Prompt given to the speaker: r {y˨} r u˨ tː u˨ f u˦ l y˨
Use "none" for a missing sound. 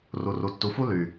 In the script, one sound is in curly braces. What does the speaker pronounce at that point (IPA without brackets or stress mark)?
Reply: u˨